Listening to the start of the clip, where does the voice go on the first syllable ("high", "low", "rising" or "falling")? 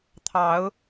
rising